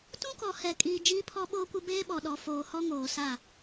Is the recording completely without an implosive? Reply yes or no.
no